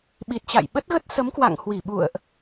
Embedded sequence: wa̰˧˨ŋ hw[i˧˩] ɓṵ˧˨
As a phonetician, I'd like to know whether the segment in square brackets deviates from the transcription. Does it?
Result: no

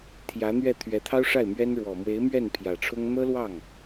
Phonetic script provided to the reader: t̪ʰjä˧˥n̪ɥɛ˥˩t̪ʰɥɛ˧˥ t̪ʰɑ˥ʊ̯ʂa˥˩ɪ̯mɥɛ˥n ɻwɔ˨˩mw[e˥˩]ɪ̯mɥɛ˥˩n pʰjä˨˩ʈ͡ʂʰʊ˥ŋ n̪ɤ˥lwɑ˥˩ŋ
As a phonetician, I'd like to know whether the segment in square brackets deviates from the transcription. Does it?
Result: yes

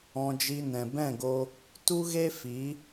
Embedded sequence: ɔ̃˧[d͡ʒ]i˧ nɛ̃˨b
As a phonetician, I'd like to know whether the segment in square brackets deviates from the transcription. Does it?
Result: no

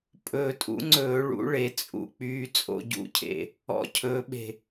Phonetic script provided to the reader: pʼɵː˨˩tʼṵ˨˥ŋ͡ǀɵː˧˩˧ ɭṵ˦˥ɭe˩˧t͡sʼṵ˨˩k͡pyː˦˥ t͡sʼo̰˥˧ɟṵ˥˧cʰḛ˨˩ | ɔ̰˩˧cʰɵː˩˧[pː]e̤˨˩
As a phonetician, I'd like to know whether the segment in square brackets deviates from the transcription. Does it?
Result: yes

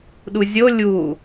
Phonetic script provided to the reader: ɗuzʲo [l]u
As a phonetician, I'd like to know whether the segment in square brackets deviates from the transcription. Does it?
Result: yes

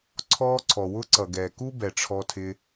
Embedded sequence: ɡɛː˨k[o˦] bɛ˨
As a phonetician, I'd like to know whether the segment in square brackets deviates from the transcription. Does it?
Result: yes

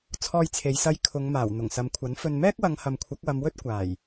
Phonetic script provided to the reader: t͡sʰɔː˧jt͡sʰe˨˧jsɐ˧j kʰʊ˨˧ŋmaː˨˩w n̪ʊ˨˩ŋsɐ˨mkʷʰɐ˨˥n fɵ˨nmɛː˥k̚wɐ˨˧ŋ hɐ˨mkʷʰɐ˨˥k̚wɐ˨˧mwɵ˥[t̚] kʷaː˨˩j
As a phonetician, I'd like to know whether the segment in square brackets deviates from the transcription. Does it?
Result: no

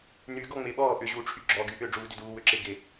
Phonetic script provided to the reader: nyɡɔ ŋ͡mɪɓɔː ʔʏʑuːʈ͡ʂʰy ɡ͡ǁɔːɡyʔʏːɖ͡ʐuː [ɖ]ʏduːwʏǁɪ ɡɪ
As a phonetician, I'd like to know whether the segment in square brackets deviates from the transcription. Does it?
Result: yes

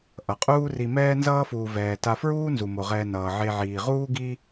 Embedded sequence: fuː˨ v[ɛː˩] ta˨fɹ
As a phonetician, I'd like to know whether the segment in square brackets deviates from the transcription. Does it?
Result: no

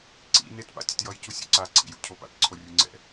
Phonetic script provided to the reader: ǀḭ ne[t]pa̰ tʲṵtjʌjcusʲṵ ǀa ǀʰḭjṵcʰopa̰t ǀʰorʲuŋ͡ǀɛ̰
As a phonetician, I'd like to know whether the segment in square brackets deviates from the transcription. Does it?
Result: no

